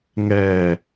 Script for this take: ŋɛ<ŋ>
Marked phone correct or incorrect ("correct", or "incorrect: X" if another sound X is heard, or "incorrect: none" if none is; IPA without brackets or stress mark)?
incorrect: none